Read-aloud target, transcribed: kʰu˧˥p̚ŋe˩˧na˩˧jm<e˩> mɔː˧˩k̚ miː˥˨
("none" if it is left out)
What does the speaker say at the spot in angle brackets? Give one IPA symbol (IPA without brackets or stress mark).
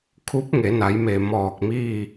e˩